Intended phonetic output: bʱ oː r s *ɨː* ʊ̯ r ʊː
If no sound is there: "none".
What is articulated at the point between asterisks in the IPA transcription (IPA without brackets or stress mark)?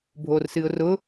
ɨː